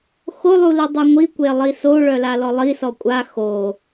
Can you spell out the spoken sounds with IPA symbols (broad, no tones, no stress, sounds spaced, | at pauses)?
x o lˠ u l i dˤ u ŋʷ i kʷ e lˠ i s o ɭ œ l a l ɔ lˠ i s ɔ kʷʼ a x o